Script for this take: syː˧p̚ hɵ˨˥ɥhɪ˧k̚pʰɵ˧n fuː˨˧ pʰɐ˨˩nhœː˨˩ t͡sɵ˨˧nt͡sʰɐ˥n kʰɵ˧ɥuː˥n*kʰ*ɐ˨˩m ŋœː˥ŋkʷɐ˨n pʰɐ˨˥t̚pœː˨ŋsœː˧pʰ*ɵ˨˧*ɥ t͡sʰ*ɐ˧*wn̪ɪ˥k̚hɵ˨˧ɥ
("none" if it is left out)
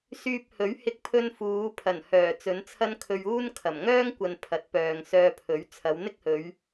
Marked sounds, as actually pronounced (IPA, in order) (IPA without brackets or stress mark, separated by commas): kʰ, ɵ˨˥, ɐ˨˧